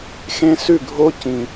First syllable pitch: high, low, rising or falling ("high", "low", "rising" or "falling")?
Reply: high